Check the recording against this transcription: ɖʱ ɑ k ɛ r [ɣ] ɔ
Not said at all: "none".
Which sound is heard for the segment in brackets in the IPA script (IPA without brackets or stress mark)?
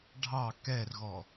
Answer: ɣ